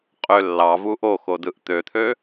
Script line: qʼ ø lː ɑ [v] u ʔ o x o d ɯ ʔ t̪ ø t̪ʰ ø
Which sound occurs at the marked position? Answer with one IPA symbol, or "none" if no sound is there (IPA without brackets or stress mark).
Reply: v